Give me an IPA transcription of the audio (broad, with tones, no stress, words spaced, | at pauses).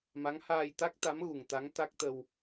ma˧˥ŋ haː˧jt̪a˦˥k̚t̪a˧˥m ɣu˨˩ŋt̪a˧˥ŋ t̪a˦˥k̚t̪ə˧w